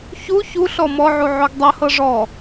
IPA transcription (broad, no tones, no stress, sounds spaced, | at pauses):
ç u ç u ɬ ɔ m ɔ ʕ u ʕ o ɡ dˤ ɤ h ɤ ʐ ɔ